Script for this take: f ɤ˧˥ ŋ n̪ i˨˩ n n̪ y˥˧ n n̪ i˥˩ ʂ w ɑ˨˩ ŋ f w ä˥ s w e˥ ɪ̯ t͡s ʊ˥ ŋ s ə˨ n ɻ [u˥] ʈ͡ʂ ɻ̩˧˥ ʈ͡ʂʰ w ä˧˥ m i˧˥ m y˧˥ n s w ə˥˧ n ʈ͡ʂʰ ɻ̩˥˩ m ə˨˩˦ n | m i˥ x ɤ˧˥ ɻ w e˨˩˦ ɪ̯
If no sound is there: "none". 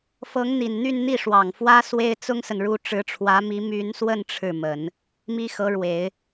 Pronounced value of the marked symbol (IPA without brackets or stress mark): u˥